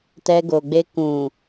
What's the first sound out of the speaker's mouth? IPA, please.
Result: t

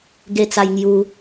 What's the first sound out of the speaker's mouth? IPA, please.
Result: ɡ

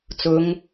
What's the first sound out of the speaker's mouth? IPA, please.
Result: t͡s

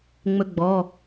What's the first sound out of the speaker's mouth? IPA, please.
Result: ŋ͡m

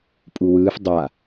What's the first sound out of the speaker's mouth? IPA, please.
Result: pʼ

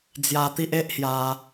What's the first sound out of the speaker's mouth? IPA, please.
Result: d͡z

